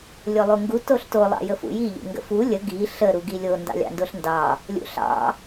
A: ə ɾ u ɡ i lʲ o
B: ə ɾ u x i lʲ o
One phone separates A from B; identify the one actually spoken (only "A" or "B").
A